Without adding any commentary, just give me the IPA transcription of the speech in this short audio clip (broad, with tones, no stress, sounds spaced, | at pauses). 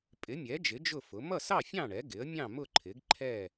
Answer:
pʼ ɪ˩˥ mʲ ɛ˩˥ d͡ʒ ɪ˩˥ d͡ʒ ʊ˥˨ f ʊ˩˥ m ʌ˥˨ s ɑ˥˨ fʲ ɑ̃˥˨ ɳ ɛ˩˥ ɡ ɪ˩˥ ə̯ mʲ ɑ̃˥˨ m ʊ˥˨ ǃʰ ɪ˩˥ ɡ ǃʰ ɛ˥˨